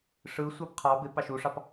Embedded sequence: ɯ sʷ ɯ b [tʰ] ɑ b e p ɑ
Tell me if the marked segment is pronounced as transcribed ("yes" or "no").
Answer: no